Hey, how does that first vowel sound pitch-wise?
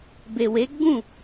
low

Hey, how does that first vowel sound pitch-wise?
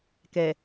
low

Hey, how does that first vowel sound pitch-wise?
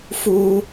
low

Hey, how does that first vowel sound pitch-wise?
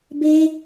high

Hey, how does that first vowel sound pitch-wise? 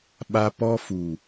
high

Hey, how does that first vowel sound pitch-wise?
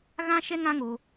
high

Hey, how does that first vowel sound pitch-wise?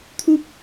high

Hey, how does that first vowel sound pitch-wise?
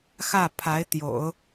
falling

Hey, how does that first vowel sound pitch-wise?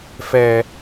low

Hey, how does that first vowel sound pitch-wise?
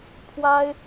high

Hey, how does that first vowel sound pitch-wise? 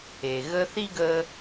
low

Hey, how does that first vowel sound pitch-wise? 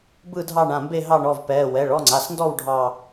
falling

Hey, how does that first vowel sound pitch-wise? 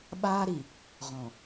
high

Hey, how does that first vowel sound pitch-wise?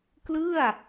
falling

